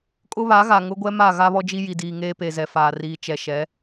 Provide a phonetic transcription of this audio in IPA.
kʼʊ˦βa˨˦ɣa˨ ŋʊ˦ɡʷɛ˦ma˦˨ ɣa˦βɔ˦d͡ʒi˦ ji˨diː˨ ŋeː˦pe˨zɛ˨faː˨ riː˨t͡ʃɛ˨ ʃɛ˨˦

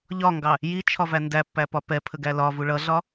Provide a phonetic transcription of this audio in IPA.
ʎɒŋɡɑ | jit͡ʃʰɒvæ ndæpːæpɒ pɛpʰəɡæ lɒvu ɭʌɮɒ

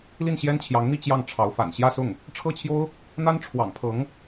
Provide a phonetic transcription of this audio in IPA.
li˥˩nɕjɛ˥nt͡ɕʰjɑ˧˥ŋn̪i˥˧ t͡ɕjɑ˥˩ŋʈ͡ʂʰɑ˧˥ʊ̯ fa̰˨˩n ɕjä˥˧sʊ˥˩ŋ | ʈ͡ʂʰɤ˥˩t͡ɕʰjo˥ʊ̯ | n̪a˥nʈ͡ʂʰwɑ̰˨˩ŋpʰɤ˧˥ŋ

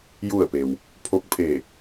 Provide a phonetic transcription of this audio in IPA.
ju˧˩ə̯pe˩w | pʰo˧˥k̚pʰe˧˩

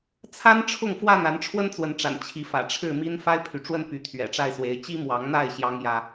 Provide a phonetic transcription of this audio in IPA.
t͡sʰa˦nʈ͡ʂʰʊ˥˨ŋfwa˥˨n a˨˦nʈ͡ʂʰwə˦nt͡swə˨˦nʈ͡ʂa̰˨˩n t͡ɕʰi˨˦fä̰˨˩ ʈ͡ʂʰɻ̩˥˨mi˦n fa˦ɪ̯pʰy˨ʈ͡ʂwə˦n py˨˦t̪ʰɥɛ̰˨˩ʈ͡ʂa˥˨ɪ̯swe˨˦ɪ̯ t͡ɕi˦mwɑ˨˦ŋn̪a˥˨ɪ̯ ɕjɑ˦ŋjä˦

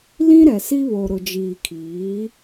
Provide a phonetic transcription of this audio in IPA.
lĩ˦ɾɛ˨si˦βo˨ ɾʊ˨d͡ʒiː˨kʰiː˨˦

